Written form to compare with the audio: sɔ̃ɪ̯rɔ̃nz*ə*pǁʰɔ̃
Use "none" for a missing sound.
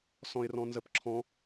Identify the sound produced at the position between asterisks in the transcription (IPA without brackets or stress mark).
ə